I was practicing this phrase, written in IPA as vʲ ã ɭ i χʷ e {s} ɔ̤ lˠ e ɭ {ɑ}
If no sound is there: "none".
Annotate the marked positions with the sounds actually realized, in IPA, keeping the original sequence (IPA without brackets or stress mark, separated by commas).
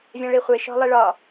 ʃ, ɒ